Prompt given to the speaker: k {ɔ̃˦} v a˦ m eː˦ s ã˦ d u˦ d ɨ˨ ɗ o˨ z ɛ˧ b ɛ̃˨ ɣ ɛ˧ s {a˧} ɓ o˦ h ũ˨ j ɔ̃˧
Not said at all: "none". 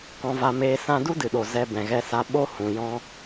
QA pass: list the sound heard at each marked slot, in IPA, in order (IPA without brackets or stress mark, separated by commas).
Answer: ɔ̃˦, a˧